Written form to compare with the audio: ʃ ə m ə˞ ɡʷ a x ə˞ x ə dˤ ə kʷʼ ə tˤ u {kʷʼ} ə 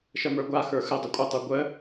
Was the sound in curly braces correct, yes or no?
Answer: no